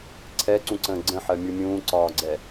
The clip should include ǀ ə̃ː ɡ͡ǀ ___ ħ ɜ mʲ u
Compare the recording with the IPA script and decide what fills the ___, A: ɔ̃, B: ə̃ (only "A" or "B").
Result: B